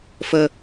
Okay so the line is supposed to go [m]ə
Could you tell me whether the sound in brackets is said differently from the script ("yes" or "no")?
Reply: yes